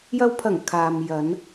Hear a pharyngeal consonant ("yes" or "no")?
no